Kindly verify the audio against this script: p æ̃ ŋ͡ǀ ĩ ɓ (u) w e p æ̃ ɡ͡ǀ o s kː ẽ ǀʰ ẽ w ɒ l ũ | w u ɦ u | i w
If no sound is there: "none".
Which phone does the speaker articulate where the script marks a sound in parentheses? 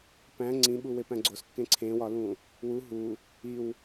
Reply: u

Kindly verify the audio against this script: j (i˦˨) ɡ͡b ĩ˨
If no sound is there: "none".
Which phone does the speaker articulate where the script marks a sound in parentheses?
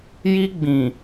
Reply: i˦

